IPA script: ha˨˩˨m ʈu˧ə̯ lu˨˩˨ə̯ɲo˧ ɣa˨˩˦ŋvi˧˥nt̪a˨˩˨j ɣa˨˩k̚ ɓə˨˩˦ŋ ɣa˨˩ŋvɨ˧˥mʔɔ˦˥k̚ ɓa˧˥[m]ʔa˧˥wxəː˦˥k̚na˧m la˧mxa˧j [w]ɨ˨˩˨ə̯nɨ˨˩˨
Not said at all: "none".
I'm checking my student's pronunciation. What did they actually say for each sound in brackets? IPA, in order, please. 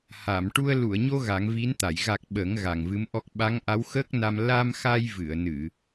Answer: ŋ, v

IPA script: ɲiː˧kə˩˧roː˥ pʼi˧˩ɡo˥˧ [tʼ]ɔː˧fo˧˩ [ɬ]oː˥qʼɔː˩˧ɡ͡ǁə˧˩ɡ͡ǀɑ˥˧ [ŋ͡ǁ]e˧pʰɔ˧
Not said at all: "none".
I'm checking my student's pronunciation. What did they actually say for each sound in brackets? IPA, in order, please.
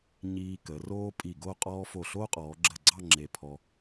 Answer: qʼ, ɬ, ŋ͡ǁ

